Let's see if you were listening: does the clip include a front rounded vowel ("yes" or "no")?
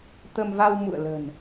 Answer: no